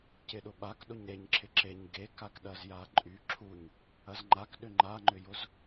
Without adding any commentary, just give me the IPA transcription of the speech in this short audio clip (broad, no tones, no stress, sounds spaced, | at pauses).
c ɪ ɗ ʊ ɓ a k ɗ ʊ ɲ ɾ e ɲ ǁʰ ɪ ǁ e ɲ ɡ e k a k ɗ ɐ z j a ǃʼ y ǁʰ u ɲ | ɐ z ŋ͡ǃ a k ɗ ʏ ŋ͡ǃ a ŋ͡ǃ ʏ j ʊ z